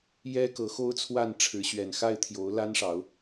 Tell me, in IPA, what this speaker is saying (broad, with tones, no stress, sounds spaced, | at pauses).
j ɛ˦ k ɤ˨˦ x o˦ ʊ̯ t͡sʰ w a˥˨ n ʈ͡ʂʰ ɻ̩˨˦ ɕ ɥ ɛ˨˩ n x a˥˨ ɪ̯ t̪ʰ j o˨˦ ʊ̯ l a˦ n ʂ ɑ˨˦ ʊ̯